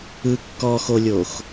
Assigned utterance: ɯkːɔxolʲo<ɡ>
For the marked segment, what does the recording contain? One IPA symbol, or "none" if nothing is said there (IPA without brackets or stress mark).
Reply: x